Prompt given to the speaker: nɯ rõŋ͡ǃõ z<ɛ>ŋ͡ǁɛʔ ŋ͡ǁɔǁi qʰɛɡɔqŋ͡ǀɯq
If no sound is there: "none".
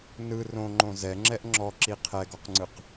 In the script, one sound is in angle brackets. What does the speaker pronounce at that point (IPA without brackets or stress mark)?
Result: ɛ